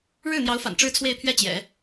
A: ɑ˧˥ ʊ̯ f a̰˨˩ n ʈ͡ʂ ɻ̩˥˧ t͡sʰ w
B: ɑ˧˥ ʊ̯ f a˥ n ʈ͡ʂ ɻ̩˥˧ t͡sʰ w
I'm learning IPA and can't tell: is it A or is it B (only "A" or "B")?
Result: A